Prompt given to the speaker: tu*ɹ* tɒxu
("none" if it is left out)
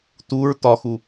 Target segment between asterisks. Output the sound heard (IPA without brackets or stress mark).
ɹ